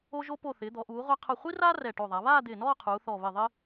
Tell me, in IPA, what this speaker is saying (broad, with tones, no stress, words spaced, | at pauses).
o˧ʒo˧po˧˩ θɪː˩˧d̪ɔ˩˧ʔuː˩˧ʁʷa˧ qʰʊ˧˩χʷi˥raː˥ rɛ˧˩ʈo˧˩ðˤa˩˧ βaː˥˧d̪ɪː˧˩nɔː˥˧ qʰuː˩˧θɔ˧˩ βɪ˧˩ ðˤɪː˥